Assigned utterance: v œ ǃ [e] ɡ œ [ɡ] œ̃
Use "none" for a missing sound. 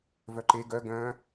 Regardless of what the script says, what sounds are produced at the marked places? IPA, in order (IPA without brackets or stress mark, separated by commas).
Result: e, ɡ